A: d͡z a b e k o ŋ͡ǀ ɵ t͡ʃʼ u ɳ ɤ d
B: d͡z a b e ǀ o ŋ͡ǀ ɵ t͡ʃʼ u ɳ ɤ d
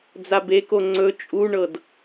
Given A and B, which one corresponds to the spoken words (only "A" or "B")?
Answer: A